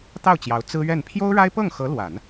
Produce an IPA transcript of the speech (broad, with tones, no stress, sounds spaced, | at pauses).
t̪ ɑ˥˩ ʊ̯ t͡ɕ j ɑ˧˥ ʊ̯ t͡s ɹ̩˥ ɥ ɛ˥˩ n pʰ j o˥ ʊ̯ ɻ a˥ ɪ̯ p ɤ˥˩ ŋ x ɤ˧˥ l w a˨˩˦ n